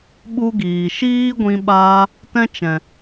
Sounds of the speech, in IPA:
ɓu˦ɡiː˨ ʃiː˦ɡʷĩ˧ ɓaː˧ | tɛ̃˦t͡ʃɛ̃˨

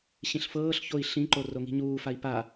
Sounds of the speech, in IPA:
ɕĩɬfɤːɬçoi̯ ɬĩǃo roŋi̤ɲuːfai̯ pa

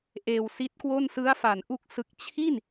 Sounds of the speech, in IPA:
ʔeː˧wsi˦˥t̚kwo˥˩n sɯ˦˥a̯fa˩˦nʔu˦˥k̚ sɯ˨˩k̚t͡ɕʰi˥˩n

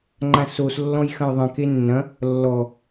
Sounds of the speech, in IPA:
ŋ͡ǃãsos lːɔ̃jxɐ̃jðˤə̃ kenːɐ̃ | lːɔ

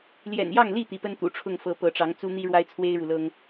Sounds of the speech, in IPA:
ljɛ̰˨˩njɑ˥˨ŋli˥˨ t̪i˨˦pə˦n t̪ṵ˨˩ʈ͡ʂʰʊ˥˨ŋ fɤ˨˦ pɤ˨˦ʈ͡ʂɑ˨˦ŋt͡su˦n̪i˦ ɻwa˦ɪ̯t͡sʰwe˦ɪ̯ɻu˨lɤ˦ŋ

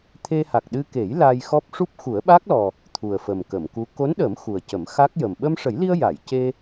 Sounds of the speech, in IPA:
t̪ʰe˧ha˨˩k̚ɗɨ˧ ke˨˩˦j la˧jxɔ˦˥p̚ ʂu˦˥p̚xu˨˩˦ə̯ɓa˦˥k̚lɔ˨˩ | t̪ʰu˨˩ə̯fə˨˩mkə˨˩˨mku˧˥ ko˧˥nɗə˨˩˦m xu˨˩ə̯cə˨˩˦m xa˦˥k̚jə˨˩m ɓə˧mʂə˨˩˦jli˧ə̯ ja˨˩˨j ce˧

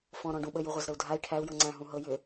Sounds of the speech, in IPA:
fɔ̃ɾɔ̃ɖũ ɓəjuʁʷazɾəu̯ dʱai̯ ʈʰæu̯jɤ ŋ͡ǀæ̃ɦũ ɦɤ jʏ

